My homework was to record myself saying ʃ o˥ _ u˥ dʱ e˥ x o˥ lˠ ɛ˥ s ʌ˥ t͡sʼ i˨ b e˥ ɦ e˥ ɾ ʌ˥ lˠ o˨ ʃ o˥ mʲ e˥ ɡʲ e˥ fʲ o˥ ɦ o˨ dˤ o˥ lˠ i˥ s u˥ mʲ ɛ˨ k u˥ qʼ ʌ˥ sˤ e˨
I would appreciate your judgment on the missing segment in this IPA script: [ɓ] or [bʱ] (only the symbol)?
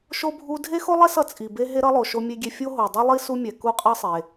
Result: bʱ